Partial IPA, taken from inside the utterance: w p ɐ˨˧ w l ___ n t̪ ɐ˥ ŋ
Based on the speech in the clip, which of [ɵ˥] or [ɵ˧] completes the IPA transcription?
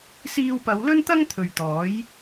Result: ɵ˥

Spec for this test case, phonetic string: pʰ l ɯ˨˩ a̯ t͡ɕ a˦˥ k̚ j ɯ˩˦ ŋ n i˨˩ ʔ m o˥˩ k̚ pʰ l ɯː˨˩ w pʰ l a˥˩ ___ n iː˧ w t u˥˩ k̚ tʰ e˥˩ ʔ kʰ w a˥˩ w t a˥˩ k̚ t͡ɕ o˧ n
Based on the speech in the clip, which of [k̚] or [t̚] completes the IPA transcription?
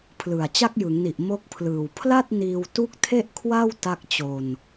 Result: t̚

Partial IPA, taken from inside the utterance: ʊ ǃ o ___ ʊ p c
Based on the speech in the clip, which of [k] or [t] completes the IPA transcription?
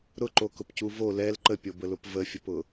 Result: k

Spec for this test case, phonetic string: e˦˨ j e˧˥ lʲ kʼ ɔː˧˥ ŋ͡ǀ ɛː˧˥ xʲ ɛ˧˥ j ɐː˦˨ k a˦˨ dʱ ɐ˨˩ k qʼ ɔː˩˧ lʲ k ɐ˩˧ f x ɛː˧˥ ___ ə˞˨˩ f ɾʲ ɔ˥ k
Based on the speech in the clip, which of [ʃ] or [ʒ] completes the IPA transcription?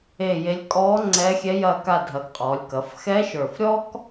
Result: ʃ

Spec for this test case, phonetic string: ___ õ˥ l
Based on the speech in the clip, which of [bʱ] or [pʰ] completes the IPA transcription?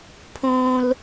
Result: pʰ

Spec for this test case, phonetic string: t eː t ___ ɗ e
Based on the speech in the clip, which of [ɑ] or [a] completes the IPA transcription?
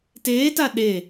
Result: a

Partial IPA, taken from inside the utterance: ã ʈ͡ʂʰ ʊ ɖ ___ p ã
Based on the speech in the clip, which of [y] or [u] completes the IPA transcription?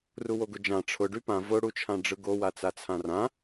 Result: y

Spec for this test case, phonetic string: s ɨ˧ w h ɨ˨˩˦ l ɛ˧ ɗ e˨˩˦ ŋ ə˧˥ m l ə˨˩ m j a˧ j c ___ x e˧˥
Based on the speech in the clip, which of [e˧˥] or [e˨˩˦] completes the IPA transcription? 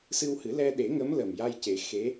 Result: e˨˩˦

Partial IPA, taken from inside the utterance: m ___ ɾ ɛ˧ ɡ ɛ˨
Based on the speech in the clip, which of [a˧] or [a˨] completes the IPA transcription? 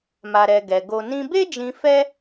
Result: a˧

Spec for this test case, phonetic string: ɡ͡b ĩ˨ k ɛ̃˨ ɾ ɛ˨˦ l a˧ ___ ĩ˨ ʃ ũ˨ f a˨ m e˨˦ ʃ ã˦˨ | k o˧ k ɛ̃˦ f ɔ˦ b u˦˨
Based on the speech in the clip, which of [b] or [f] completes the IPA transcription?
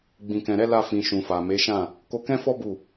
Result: f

